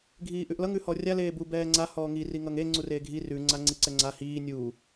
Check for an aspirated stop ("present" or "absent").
absent